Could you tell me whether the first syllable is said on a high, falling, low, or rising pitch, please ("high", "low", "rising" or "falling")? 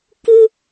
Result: high